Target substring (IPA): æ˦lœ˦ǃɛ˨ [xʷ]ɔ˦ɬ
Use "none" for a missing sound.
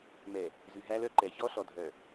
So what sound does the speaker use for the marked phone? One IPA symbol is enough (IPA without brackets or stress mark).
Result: ç